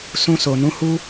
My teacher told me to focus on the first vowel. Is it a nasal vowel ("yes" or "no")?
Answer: yes